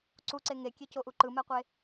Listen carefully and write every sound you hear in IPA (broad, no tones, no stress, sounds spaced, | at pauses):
ǀ u ǀ e ŋ e kʲ e c o ʔ u ǃ ɯ m ɛ qʷ e